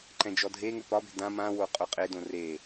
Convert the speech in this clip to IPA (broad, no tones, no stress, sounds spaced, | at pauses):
ǃ ɛ̃ d͡ʒ ɔ dʱ e ŋ ʏ p ɒ b e̤ d ã m ã w o qʼ o qʼ e d õ r e